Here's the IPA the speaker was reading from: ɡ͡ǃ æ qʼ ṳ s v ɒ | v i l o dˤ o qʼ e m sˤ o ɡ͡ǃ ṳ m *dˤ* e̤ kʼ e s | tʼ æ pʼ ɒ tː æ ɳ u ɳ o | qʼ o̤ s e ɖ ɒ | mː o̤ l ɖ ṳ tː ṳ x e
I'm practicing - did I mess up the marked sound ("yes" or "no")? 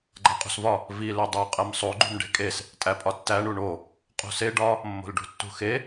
yes